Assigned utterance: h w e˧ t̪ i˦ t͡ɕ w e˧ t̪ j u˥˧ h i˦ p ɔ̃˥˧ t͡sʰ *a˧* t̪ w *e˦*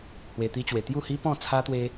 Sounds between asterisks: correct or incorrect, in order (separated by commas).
incorrect, correct